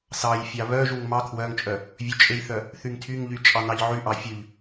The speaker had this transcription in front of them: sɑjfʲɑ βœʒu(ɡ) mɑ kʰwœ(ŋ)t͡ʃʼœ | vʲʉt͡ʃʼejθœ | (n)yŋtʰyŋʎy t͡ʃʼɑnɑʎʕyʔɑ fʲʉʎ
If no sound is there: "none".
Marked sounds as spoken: ŋ, ŋ, θ

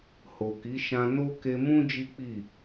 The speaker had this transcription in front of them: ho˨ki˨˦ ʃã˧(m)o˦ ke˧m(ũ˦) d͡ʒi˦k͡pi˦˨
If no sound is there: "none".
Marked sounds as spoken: n, ũ˦

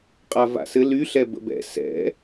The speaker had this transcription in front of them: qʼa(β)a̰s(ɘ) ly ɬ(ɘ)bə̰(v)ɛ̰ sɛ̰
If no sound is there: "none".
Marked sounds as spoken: v, ɘ, ɛ, b

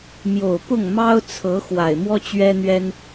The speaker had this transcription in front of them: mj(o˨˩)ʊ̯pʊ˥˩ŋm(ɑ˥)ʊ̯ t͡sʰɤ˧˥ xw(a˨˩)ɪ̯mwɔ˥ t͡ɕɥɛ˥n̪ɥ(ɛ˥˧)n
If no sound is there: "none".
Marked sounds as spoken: o˨˩, ɑ˥, a˨˩, ɛ˥

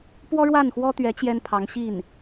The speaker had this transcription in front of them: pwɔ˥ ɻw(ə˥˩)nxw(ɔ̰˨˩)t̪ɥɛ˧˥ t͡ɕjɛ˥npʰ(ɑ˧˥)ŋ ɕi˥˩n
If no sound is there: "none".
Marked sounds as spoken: a˥˩, ɔ˥, ɑ˧˥

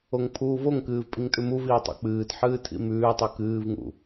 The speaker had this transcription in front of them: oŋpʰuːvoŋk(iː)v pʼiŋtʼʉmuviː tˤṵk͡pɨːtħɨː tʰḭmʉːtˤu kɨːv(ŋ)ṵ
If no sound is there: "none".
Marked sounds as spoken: ɨː, ŋ

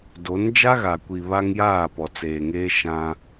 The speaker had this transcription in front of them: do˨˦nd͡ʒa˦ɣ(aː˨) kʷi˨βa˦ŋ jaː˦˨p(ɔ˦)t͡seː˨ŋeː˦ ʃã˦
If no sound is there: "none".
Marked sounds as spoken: a˨, ɔ˨

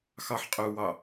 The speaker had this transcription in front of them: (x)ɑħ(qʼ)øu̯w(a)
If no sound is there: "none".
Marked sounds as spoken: x, qʼ, ɑ

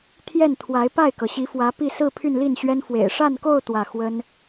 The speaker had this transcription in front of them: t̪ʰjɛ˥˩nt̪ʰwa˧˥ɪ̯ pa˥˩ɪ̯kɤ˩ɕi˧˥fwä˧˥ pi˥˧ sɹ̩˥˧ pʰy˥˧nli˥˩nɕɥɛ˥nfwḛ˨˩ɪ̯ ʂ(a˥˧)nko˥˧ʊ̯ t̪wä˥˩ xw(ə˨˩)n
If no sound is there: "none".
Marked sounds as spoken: a˥˧, ə˥

